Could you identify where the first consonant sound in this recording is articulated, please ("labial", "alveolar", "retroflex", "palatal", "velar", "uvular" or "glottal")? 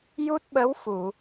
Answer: palatal